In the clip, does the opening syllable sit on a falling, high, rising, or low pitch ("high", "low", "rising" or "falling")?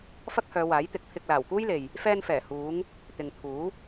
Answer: high